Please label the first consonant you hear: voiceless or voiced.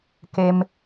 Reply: voiceless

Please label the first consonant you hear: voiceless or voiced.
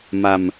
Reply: voiced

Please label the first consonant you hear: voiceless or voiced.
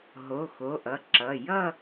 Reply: voiced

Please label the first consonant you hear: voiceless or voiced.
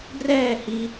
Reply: voiced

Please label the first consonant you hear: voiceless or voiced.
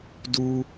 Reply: voiced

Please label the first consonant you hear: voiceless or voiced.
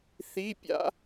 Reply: voiceless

